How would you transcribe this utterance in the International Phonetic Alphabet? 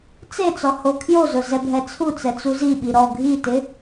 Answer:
t͡s e t͡s ɔ h o kʰ j o z ʊ z ɛ bʱ ɛ t͡sʰ u t͡s ɛ t͡s u z i ɓ i ɾ ɔ ɡʱ i t ɪ

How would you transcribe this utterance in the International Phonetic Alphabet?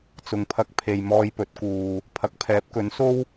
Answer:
t͡s ʊ˨ ŋ pʰ ɐ˧ k̚ pʰ e˨ j m ɔː˧ j p ɵ˨˥ t̚ k uː˨ | pʰ ɐ˨˥ k̚ pʰ ɛː˨˥ p̚ k ɵ˨˥ n s o˥ w

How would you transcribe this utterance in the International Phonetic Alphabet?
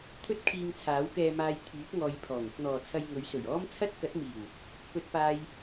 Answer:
t̪ʰ ɵ˥ t̚ kʰ iː˧ ŋ t͡sʰ aː˨˥ w k ɛː˧ m aː˧ j t̪ʰ yː˨˥ t̚ ŋ ɔː˨˧ j pʰ ɔː˨˩ ŋ ɪ˧ k̚ n̪ ɔː˨ t͡sʰ ɐ˧ j ŋ ɵ˨˥ ɥ s ɵ˨˩ ɥ ɔː˥ m t͡sʰ ɐ˥ t̚ k ɐ˨˥ t̚ m iː˨˩ w | p ɵ˥ t̚ p aː˥ j

